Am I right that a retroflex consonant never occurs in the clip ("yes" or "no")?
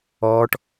no